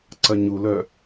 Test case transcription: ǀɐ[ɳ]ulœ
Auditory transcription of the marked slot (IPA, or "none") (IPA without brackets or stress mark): ɲ